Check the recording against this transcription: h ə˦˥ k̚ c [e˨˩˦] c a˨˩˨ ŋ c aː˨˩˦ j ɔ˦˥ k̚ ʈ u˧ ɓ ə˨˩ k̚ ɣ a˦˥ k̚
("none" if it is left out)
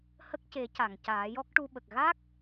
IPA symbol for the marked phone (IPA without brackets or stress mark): e˨˩˦